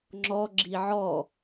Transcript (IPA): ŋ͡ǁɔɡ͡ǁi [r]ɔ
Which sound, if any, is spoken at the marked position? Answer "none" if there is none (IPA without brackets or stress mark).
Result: ʕ